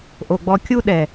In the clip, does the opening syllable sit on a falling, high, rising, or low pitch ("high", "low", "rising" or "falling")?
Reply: low